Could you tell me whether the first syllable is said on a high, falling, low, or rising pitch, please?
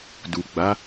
low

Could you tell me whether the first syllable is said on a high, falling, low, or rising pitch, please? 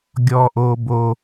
high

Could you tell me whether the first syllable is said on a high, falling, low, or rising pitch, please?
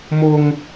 high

